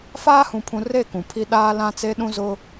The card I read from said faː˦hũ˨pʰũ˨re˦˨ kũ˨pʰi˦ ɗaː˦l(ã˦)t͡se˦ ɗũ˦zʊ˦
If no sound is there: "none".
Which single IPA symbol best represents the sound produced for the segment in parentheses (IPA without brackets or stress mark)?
ã˦